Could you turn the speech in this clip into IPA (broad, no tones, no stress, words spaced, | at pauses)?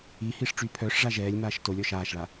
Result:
ihiʂ ʈ͡ʂypʰœʂʐa ʒɛːlʲmaːʃ tolʲɔ ʃaːʃɭa